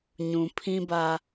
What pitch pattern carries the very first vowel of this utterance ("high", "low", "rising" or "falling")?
low